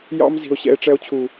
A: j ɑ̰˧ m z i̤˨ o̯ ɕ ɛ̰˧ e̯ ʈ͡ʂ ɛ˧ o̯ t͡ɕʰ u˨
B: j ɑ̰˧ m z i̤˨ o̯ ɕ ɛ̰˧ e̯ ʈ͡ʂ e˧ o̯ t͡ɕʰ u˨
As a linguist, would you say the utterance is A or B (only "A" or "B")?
A